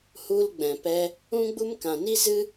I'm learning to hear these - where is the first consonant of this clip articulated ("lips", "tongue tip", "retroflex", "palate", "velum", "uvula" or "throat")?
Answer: throat